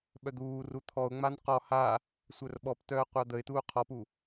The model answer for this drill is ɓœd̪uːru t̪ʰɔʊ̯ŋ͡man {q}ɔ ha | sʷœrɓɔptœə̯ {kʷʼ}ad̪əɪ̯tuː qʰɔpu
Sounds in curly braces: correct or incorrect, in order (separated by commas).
correct, incorrect